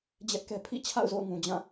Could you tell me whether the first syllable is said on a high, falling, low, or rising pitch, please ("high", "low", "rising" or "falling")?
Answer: high